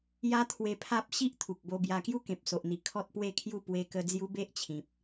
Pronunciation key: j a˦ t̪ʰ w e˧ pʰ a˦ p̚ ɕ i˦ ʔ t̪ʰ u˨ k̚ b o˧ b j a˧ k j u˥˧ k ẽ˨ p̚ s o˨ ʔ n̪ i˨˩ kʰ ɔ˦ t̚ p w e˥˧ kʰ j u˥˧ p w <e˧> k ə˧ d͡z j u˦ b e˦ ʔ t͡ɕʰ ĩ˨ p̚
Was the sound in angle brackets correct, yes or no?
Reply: yes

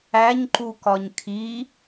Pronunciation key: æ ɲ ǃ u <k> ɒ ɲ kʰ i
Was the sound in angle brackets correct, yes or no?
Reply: yes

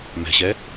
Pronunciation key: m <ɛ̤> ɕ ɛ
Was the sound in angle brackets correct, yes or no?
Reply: yes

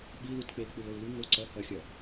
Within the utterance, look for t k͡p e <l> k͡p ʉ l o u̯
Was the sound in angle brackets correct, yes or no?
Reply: yes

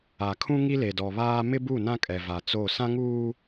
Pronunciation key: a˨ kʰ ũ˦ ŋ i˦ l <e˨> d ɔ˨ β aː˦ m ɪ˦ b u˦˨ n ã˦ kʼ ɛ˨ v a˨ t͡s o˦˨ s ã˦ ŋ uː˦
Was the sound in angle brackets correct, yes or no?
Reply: yes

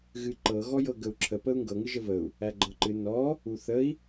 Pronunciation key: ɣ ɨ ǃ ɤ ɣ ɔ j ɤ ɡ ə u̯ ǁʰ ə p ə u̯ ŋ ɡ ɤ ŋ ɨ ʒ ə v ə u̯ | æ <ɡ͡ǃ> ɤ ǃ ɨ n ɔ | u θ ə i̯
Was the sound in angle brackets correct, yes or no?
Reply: yes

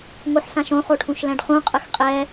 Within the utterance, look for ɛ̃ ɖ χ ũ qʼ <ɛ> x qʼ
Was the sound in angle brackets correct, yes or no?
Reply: no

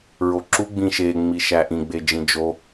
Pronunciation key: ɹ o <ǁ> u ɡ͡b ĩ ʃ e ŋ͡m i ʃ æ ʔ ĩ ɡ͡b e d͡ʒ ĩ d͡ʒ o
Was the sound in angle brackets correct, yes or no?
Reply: yes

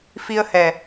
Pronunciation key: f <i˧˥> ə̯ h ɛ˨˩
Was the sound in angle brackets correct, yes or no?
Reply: no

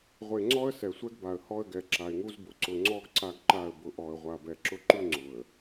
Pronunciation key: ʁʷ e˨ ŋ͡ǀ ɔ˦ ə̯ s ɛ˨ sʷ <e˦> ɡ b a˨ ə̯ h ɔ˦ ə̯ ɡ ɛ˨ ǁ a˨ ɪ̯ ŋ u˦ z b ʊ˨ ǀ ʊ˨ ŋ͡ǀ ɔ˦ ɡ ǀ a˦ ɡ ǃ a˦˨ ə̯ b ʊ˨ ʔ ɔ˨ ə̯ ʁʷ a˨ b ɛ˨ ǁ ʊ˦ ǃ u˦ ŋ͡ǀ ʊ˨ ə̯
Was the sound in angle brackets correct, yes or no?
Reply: no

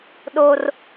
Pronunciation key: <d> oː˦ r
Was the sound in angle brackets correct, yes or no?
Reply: no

